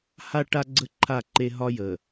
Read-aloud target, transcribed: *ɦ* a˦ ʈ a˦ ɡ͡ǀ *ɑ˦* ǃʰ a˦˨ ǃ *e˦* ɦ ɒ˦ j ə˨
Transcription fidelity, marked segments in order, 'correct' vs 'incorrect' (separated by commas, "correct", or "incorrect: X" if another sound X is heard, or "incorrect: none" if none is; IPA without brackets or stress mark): incorrect: h, incorrect: ə˦, correct